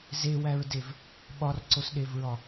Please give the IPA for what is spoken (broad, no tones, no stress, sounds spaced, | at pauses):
z e w æ ɹ d e v | ɓ ɒ r ǀ o s ɗ e v ɹ ɒ